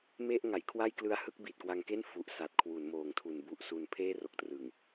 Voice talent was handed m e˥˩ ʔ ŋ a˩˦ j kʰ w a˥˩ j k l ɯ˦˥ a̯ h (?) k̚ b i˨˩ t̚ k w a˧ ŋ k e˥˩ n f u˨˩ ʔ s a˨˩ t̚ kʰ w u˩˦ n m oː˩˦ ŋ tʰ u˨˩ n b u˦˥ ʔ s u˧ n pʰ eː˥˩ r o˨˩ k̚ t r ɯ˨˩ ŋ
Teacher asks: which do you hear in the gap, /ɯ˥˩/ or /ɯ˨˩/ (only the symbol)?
ɯ˥˩